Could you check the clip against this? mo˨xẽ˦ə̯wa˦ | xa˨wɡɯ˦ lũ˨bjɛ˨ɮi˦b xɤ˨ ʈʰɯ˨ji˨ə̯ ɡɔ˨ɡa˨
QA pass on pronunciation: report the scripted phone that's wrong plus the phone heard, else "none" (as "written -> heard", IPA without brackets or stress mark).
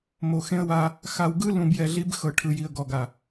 none